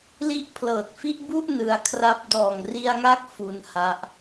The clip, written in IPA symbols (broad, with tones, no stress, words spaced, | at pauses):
li˦˥ʔ pʰlɤː˨˩t̚fi˥˩ʔbu˥˩ʔ nɯ˧a̯kʰra˦˥p̚ dɔː˨˩ŋri˧a̯ŋa˦˥k̚ fu˧nha˦˥ʔ